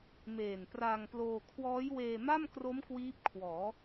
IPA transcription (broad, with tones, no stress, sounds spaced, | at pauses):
m eː˨˩ n p r aː˧ ŋ p l oː˧ kʰ w ɔː˦˥ j w eː˧ m a˥˩ m k r o˦˥ m k w iː˦˥ p̚ kʰ w ɔː˩˦